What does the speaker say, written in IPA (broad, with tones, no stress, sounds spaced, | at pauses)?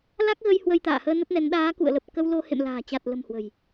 l a˦˥ k̚ ɣ ə˧ j h w ə˧ j t̪ a̰ː˧˨ h əː˧ n ə˦˥ t̚ n ɛ˨˦ n ɗ aː˨˦ k ṵ˧˨ ə̯ l ə˨˩ p̚ k ə˧ w l o˧ h ḛ˧˨ m l a̤ː˨˩ t͡ɕ a˨˩ t̚ l ə̤˨˩ m h w ə̤˨˩ j